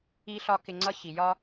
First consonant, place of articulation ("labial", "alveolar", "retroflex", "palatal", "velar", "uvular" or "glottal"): alveolar